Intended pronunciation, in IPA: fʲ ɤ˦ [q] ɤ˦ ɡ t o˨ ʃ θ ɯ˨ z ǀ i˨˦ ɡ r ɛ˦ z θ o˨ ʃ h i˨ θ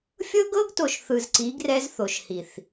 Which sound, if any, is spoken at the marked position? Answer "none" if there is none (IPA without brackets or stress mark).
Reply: ɡ